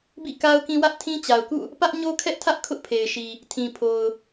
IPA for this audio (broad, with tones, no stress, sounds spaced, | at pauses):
b ḭ˦˨ k a˦ ʊ̯ k ĩ˦ w ä˦ ʔ tʰ ĩ˦ t͡ɕ a˨ ʊ̯ k ṵ˦˨ | p ä˦ ʔ ɲ o˦ kʰ ɛ˦ ʔ tʰ ä˦ ʔ kʰ ʊ˦ ʔ pʰ e˨ ɪ̯ ʃ i˨ | tʰ ĩ˨ pʰ o˨ ʊ̯